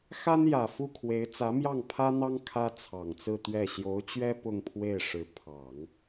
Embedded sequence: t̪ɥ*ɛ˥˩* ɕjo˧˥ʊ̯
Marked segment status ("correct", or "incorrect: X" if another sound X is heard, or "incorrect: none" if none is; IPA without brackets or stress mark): correct